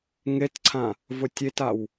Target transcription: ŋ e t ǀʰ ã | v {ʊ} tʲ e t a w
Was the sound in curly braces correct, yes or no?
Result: yes